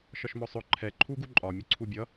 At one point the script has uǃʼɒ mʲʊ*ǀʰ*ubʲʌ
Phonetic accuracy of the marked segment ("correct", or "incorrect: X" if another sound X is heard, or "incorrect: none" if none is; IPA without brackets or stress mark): correct